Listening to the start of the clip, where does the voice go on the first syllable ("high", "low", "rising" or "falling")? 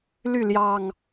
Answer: falling